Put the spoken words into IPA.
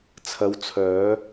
t͡sʰ ɐ˨˧ w t͡sʰ œː˨˧

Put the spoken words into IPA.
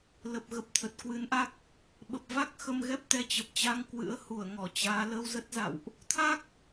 l ə˨˩ p̚ ɣ ə˨˩ p̚ t̪ʰ ə˨˩ t̚ k w ɨ˨˦ n ʔ a˦˥ k̚ | ɓ ə˨˩ p̚ v a˦˥ k̚ x ə˧ m ɣ ɛ˦˥ p̚ t̪ ɛ˧ t͡ɕ ə˨˩ p̚ t͡ɕ a˧ ŋ k w ɨ̰˧˥ ə̯ h u˧˩ ə̯ ŋ ɔ˧˩ t͡ɕ aː˨˦ l ə˧ w z ə˦˥ t̚ z a̰˧˨ w ʔ | t̪ʰ a˦˥ k̚

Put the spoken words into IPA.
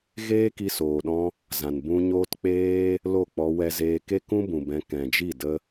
ɣ eː˦ k i˧ s oː˨ ɗ ɔ̃˧ | z ã˨ n b ũ˧ ɲ oː˦ t k͡p eː˦ | l o˦˨ k͡p ɔ˧ w ɛ˧ z eː˧ k e˦ k ũ˦ b ũ˨ b ɛ̃˨˦ k ɛ̃˨ d͡ʒ i˦˨ d ə˧

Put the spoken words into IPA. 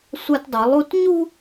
sʷ a˦ t dˤ u˨˦ lˠ u˦ t ɲ u˦

